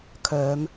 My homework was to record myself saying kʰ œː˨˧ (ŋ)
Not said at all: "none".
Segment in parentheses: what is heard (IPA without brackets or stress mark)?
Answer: m